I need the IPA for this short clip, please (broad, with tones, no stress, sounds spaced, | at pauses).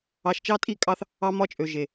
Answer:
ɑ˨ ʃ t͡ʃ ɑ˦ tʼ i˦˨ kʼ ɑ˦ θ | ɑ˦ m ɒ˦ t͡ʃʼ ø˨ ʒ e˨